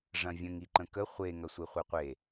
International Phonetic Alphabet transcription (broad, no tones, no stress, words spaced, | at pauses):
ʐɐ̃vʲə̃ŋ iǃə̃kə χʷe ŋɐsʷeχʷeqʷe